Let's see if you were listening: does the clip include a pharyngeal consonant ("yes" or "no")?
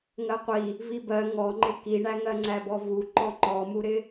no